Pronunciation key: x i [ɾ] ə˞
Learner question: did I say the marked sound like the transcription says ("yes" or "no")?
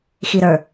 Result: yes